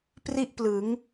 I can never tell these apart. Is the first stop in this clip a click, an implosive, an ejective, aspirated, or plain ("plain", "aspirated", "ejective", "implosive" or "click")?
plain